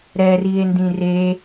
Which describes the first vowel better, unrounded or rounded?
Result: unrounded